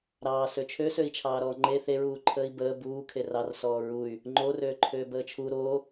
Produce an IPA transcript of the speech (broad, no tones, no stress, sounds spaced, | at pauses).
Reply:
ɾ ɑː s ø t͡ʃʰ ø s ø i̯ t͡ʃʰ ɑː ɾ ɔː ŋ͡ǃ e θ e ɹ uː ǃʰ əː i̯ b əː b uː kʰ e r ɑ r s ɔː ɹ u y̯ | ŋ͡ǃ o r øː ǃʰ øː b əː t͡ʃʰ u ɾ o